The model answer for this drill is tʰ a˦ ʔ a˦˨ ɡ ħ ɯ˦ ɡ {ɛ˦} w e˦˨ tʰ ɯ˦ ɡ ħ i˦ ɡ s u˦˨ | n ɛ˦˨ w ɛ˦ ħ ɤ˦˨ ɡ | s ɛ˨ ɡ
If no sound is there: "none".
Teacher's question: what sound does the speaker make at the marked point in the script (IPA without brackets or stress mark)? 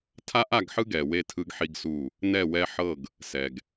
ɛ˨